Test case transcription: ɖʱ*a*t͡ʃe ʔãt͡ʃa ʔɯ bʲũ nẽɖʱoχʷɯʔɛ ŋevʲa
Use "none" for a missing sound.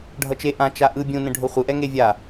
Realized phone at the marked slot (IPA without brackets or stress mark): ʌ